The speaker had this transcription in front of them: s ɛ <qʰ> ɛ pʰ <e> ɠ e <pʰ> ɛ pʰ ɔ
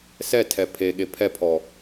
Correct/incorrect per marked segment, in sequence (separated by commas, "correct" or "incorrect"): incorrect, correct, correct